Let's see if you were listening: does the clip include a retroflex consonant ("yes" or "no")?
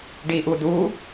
yes